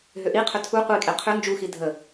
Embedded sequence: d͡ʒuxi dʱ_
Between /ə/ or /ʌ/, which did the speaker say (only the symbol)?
ə